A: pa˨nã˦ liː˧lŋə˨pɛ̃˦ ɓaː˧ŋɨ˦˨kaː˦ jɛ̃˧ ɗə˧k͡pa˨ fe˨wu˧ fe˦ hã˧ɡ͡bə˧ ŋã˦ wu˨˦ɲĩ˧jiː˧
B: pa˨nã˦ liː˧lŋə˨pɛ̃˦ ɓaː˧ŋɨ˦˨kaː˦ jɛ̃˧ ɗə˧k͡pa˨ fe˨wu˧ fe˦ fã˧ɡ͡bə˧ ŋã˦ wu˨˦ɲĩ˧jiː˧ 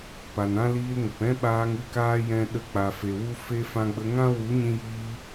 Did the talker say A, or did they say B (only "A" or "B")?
B